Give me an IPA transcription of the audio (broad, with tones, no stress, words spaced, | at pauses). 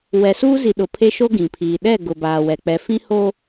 wɛ˨suː˦zi˨ ɗʊ˨pʰe˦ʃo˦ ɡĩ˨pʰiː˨ ɗɛ˦˨ ɡʊ˨baː˨wɛ˨k͡pɛ˨ fĩ˦ho˦